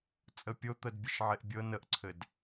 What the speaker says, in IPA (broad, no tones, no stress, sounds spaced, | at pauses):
t͡sʼ ə pʲ o t̪ ə d bʲ ɘ ʃ ʕ e ʔ bʲ ɤ n ə ʔ ǀʰ ɘ d